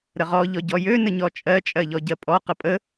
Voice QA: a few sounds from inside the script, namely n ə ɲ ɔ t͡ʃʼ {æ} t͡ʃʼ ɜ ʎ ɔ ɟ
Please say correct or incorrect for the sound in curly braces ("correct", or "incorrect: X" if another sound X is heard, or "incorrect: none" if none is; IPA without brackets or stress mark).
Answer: incorrect: ɜ